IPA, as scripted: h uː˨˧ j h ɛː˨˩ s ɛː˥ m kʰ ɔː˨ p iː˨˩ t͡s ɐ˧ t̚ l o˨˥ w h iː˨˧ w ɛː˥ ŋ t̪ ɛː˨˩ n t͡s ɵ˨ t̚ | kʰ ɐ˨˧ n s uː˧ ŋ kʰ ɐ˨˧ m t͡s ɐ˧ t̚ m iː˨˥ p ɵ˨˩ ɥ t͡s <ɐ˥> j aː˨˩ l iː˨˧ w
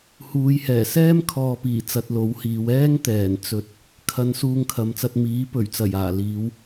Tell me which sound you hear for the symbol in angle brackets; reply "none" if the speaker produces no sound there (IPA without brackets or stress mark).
ɐ˨˩